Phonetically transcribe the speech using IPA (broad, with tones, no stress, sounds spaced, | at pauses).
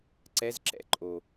ǀ ɛ˧˥ z ǁ ɛ̰˧ ǃʼ o˩